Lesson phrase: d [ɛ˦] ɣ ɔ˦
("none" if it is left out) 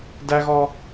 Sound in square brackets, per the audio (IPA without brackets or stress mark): æ˦